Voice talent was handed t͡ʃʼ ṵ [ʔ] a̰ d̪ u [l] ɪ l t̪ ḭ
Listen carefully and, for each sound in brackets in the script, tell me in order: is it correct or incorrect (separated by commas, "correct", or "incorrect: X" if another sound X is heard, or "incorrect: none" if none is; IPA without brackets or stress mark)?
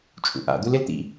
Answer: correct, correct